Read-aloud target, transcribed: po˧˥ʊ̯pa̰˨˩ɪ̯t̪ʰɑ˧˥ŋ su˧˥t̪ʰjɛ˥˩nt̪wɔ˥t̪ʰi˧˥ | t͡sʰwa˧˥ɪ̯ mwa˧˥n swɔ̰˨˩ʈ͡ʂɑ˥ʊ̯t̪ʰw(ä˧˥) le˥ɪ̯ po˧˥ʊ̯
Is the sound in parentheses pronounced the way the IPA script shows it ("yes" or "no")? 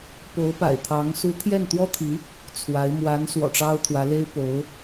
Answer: yes